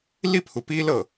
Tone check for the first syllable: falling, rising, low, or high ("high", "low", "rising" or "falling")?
falling